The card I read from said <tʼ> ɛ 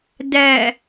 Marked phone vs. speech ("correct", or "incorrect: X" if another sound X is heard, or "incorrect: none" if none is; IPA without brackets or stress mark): incorrect: d